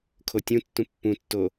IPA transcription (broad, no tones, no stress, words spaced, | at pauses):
kʰotʲũtːũ pːũtːo